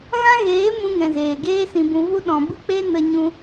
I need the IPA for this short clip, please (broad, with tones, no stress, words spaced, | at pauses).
ɣã˦ɣeː˨˦ mũ˧ŋɛ̃˨ zeː˨ɡeː˦sĩ˧bũ˧ vu˧ ɗɔ̃˨bɨ˧k͡pe˧ nə˧ɲũ˧